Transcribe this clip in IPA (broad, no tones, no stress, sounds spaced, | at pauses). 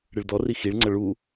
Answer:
ɽ ɨ ɭ d ɔ r i x i ɭ ŋ͡ǀ ʌ ɭ u